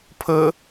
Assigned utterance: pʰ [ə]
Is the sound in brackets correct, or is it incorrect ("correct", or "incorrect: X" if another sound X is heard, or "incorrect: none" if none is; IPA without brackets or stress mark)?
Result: correct